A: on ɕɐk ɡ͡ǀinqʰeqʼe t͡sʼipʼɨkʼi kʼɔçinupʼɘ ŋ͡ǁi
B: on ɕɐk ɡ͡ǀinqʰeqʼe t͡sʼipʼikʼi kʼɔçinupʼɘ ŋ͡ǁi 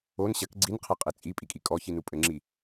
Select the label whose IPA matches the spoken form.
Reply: B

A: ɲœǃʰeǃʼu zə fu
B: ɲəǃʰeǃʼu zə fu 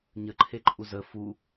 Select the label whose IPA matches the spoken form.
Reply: B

